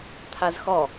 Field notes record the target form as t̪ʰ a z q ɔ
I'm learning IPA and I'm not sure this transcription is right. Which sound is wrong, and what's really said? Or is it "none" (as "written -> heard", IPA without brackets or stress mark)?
q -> x